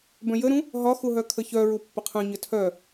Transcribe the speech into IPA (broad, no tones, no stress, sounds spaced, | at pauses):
b œ̃ j ə ɾ ũ | ɦ ɒ x u ɦ œ kʰ ə ç œ ɹ u pː ə qʰ œ̃ ɲ ə tʰ œ